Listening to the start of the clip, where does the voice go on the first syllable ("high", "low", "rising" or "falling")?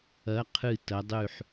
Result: rising